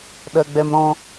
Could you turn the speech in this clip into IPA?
ɗ ɜ ɡ͡b ɛ m ɾ ɔ̃

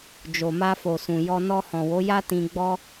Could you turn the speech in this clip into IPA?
d͡ʒ o˨ m a˧ f o˨ s ũ˨ j ɔ˧ n ɔ˧ h ɔ̃˨ w o˨˦ j a˦ t ĩ˧ ɡ͡b ɔ˦

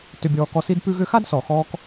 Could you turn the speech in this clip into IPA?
t ʏ˨ bʲ ɔː˨ k ɔ˨ s i˦ d p ʉ˦ ɣ ʏ˦ x a˥ d s ɔ˩ x ɔː˦ k

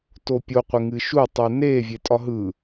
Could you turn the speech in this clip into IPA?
t o pʲ o qʷ ɪ ŋ ɨ ʃ u tˤ u n e vʲ e tʼ ɒ ɦ ɯ

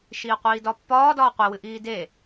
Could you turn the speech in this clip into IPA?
ʃ iː qʷ iː d ɒ pː ɒː d ɒː qʷ e w ɨ ʔ iː d e

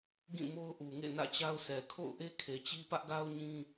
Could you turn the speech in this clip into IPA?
ɡ ĩ˦˨ m o˦ ʊ̯ ʔ u˨ ŋ ḛ˦˨ n ä̰˦˨ t͡ɕ a˦ ʊ̯ sʰ ɛ˨ kʰ o̰˦˨ ʊ̯ ʔ e˦ kʰ e˨ t͡ɕ i˦ p ä˦ ʔ ɡ a˦ ʊ̯ ɲ ĩ˦

